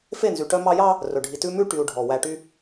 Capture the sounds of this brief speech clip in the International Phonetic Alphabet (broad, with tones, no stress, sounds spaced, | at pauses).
f e˦˨ n z y˨ ʈ œ˦ m ɑ˦ j ɑ˦ | r ɵ˨ ɖʱ i˨ t ʉ˦ m ʉ˦ ʈ y˨ u̯ ɖʱ ɔ˨ w æ˨ ʈ y˦